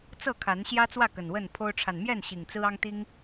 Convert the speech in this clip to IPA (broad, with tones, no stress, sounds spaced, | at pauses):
t͡s ɤ˥˨ kʰ a˨˦ n ɕ j ä˦ t͡s w ä˥˨ k ə˨˩ n w ə˥˨ n pʰ o˦ ʊ̯ ʈ͡ʂʰ a˨ n m j ɛ˥˨ n ɕ i˨˩ ŋ t͡s ɹ̩˦ ɑ˦ ŋ t̪ i˦ ŋ